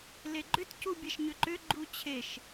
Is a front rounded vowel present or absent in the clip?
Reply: present